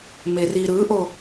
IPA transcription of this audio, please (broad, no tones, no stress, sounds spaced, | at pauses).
m e r i ɾ ɯ ʔ o